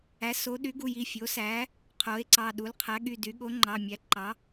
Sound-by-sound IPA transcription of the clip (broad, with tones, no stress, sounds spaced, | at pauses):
æ˩˥ s o˩˥ ɗ y˩˥ ɡ u˩˧˩ j i˩˧˩ fʲ o˩˥ s æ˩˥ | qʰ o˩˥ e̯ ǀ ɑ˩˧˩ ɗ u˩˥ l qʰ æ˩˥ ɠ y˩˧˩ d y˩˥ ɠ o˩˥ ŋ͡ǃ ɑ˩˧˩ mʲ æ˩˥ ǃ ɑ˩˥